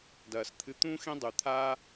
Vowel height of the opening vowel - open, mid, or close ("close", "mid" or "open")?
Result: open